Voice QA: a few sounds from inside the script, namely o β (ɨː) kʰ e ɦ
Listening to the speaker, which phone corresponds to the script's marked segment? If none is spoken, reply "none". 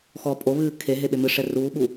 ɨː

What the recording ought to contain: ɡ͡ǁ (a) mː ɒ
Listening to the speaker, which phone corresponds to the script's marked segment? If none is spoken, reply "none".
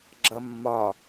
ʌ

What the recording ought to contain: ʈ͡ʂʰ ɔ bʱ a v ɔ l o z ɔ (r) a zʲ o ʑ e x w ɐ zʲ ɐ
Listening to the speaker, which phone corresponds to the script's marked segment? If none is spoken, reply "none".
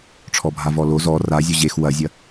r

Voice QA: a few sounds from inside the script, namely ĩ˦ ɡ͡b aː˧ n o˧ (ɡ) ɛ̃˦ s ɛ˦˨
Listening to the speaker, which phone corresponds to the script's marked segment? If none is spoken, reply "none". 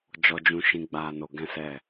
ɡ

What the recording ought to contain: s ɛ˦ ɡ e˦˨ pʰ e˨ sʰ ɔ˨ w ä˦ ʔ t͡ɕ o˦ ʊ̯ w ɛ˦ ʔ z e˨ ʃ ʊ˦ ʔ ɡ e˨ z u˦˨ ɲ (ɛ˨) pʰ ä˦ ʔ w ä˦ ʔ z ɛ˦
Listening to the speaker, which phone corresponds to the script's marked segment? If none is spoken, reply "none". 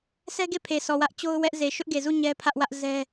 ɛ˦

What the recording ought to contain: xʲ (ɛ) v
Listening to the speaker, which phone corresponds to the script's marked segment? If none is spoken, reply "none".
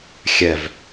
ɛ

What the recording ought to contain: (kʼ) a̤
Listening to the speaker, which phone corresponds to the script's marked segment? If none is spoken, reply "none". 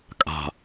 kʼ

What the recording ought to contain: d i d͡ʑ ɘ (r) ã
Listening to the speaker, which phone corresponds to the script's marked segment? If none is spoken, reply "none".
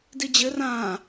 r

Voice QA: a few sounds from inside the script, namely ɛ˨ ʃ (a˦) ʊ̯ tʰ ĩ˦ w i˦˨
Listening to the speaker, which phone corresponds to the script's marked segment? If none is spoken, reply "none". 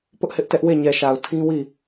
a˨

